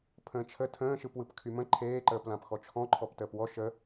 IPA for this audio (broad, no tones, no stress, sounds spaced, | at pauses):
pʰ ə̃ː t͡ʃʰ ə tʰ ə̃ː ʃ ɯ p w ɯ p kʰ y m ə̃ ǃʰ eː ǃ əː p l ã p x ɔ t͡ʃʰ ɔ̃ ǃʰ ɔ p t əː p w ɔ ʃ ə